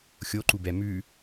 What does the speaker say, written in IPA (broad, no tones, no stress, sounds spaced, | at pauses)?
xʲ o ǃ u b ɛ m ʉ